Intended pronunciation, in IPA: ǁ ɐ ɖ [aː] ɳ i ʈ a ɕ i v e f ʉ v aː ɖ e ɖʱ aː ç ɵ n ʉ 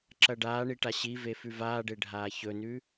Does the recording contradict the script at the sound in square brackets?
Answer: no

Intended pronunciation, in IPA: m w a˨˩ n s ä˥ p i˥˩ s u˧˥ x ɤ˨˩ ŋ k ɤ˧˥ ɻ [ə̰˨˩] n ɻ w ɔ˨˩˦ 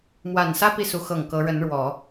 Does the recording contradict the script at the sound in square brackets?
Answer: yes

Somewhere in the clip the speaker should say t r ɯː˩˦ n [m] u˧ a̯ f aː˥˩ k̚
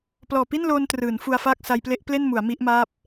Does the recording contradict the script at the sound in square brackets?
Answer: yes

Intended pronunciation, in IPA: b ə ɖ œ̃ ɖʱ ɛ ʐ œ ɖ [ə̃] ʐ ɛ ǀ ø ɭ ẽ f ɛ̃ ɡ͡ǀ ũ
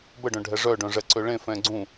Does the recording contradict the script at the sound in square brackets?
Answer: yes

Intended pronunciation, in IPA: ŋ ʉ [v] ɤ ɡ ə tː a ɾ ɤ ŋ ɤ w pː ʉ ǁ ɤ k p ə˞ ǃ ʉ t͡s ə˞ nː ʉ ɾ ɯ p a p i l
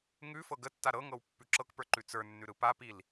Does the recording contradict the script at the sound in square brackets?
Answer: yes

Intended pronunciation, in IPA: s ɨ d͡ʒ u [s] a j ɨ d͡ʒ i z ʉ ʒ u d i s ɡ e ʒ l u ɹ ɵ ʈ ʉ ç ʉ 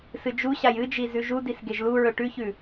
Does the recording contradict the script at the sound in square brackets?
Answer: yes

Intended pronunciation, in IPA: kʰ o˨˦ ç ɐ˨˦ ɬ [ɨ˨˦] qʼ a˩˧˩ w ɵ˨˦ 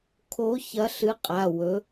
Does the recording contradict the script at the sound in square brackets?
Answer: no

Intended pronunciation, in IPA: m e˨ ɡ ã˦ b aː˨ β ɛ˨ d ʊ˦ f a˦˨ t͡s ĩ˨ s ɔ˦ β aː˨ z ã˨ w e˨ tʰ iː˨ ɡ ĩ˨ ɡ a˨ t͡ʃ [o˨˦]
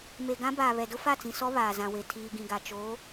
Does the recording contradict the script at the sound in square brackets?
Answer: no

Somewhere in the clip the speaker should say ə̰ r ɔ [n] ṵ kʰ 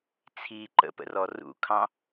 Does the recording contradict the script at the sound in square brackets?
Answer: yes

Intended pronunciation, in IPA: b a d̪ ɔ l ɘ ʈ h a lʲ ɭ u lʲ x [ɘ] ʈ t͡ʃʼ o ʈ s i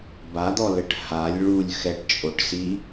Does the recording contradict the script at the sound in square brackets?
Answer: yes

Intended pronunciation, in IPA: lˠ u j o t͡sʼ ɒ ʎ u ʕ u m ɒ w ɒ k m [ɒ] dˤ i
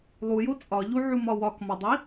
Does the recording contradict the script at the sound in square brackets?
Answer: no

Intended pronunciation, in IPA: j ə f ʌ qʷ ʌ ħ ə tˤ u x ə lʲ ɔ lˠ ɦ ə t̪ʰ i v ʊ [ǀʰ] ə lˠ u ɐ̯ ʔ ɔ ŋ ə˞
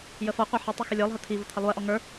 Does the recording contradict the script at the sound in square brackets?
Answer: yes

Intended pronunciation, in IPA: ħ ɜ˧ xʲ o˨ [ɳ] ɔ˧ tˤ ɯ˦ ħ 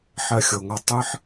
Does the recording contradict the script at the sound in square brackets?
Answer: yes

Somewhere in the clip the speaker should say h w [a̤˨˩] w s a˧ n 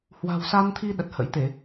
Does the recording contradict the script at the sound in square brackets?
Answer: no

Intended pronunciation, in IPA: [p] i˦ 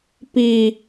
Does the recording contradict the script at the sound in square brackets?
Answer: no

